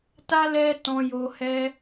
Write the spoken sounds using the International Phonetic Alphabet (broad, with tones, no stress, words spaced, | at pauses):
ta˦ lɛ˦tɔ̃˧ jo˧hɛ˦